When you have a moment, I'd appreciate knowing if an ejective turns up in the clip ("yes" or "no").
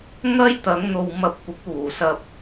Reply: no